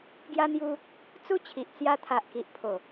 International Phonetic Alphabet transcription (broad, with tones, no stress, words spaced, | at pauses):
ɡja˧n̪ju˧ | t͡su˦t͡ɕʰi˨ʔ t͡sja˧t̪ʰa˨ʔki˨ʔ pʰo˨˩